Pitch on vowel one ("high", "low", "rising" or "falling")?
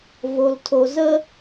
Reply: low